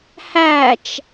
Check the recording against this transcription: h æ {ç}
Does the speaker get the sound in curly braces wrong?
yes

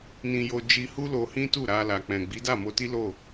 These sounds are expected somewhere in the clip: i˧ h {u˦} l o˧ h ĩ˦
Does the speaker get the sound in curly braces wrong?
no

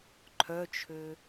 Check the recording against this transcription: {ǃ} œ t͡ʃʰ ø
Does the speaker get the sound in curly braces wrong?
yes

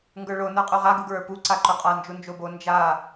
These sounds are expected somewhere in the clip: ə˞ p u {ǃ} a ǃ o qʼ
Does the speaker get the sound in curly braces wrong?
yes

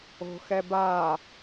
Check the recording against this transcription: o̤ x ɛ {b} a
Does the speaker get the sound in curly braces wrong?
no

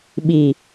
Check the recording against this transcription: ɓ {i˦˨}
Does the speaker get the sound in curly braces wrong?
yes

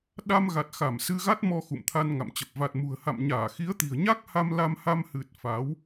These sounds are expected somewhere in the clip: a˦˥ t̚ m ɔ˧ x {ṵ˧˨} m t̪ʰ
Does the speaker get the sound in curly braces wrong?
no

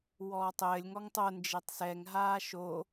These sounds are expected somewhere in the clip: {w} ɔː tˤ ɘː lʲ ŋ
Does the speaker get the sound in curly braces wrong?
no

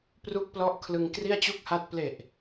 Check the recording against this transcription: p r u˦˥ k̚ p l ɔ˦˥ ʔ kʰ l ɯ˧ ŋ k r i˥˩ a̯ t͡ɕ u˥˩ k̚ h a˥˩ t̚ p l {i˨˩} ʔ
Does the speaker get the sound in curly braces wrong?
yes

